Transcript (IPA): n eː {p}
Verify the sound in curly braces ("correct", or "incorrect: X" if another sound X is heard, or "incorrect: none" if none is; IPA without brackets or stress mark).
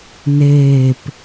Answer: correct